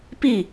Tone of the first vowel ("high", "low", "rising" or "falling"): falling